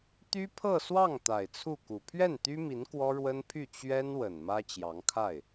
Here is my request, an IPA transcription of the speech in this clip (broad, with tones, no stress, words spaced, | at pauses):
t̪y˥pʰɤ˥˧swɑ˥˩ŋ t̪a˨˩ɪ̯t͡sʰu˥˩ku˨˩ pʰɥɛ˥˩nt̪y˥mi˧˥n kwɔ˥ɻwə˥npʰy˥˩ t͡ɕɥɛ˥nwə˨˩n mä˥t͡ɕjɑ˧˥ŋkʰa˥˩ɪ̯